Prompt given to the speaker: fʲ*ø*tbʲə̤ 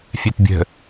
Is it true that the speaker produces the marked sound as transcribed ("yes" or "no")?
no